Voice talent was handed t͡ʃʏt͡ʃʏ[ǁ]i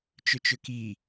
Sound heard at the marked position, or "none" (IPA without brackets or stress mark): k